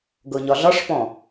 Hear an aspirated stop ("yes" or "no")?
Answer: no